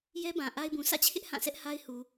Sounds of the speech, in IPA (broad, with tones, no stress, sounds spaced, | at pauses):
j ɛ˦ b ã˨ ʔ a˦ ɪ̯ b ũ˨ s ä̰˦˨ t͡ɕʰ ɪ˦ ʔ h ã˦˨ s ɛ˦ ʔ h a˦ ɪ̯ h u˨